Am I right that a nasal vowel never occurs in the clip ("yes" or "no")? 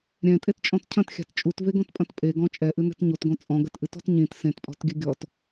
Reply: no